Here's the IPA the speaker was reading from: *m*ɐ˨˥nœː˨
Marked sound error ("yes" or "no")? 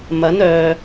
no